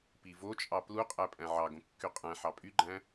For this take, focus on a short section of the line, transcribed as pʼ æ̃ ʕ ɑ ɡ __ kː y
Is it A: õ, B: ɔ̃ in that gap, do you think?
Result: A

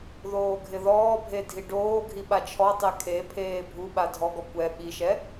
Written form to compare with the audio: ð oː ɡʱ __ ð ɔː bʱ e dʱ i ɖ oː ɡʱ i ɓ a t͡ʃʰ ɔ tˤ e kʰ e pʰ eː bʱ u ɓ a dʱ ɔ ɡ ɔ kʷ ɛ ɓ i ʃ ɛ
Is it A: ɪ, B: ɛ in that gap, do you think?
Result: A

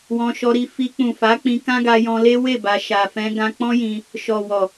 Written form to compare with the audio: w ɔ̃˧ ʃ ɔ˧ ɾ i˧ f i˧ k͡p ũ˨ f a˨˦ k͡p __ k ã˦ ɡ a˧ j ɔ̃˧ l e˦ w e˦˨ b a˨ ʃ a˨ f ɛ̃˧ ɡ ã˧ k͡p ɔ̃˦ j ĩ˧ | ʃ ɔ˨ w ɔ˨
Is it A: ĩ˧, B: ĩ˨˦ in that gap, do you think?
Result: A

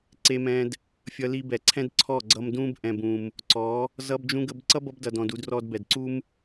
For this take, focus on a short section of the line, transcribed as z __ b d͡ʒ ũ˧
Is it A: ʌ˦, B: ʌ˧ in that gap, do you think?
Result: B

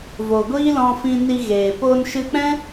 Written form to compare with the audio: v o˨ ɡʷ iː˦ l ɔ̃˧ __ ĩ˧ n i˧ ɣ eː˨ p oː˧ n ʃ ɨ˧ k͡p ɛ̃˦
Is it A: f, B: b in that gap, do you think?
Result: A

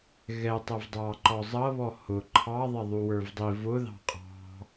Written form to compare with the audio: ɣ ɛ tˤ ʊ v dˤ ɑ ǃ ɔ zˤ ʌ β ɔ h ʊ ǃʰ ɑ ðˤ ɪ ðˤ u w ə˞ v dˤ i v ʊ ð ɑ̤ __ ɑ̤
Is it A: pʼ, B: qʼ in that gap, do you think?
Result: B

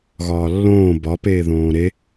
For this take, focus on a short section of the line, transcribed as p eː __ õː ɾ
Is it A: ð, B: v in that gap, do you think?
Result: A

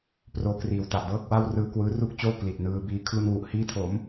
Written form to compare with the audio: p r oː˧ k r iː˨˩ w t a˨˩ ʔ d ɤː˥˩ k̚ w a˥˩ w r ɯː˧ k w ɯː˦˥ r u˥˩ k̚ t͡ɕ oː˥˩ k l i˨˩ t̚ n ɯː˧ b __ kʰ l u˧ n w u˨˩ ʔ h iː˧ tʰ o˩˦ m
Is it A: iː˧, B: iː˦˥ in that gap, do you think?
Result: B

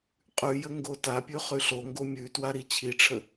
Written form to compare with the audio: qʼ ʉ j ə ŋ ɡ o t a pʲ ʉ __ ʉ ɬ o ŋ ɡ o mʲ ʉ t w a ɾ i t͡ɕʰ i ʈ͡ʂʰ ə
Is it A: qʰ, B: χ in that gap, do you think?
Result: B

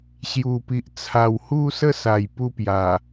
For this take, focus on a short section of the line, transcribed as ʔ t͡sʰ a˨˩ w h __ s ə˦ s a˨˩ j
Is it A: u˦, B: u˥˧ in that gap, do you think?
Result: B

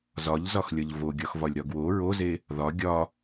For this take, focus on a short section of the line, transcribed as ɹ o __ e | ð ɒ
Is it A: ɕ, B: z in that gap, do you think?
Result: B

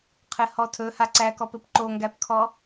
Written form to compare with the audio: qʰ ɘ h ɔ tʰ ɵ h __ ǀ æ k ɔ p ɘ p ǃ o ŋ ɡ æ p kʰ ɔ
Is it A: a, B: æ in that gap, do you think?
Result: A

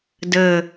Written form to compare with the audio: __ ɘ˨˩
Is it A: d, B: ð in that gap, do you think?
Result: A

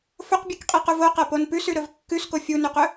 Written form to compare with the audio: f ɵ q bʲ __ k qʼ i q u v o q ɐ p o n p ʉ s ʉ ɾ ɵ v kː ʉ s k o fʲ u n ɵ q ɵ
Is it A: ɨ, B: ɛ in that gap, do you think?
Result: A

